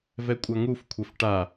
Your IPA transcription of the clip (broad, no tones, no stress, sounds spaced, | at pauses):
v ɛ kʷʼ a ŋ u f kʷʰ ɛ f ʈ a